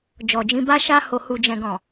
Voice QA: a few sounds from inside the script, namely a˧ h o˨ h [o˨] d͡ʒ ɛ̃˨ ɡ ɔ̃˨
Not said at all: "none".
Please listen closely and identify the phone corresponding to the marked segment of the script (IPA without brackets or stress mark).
u˨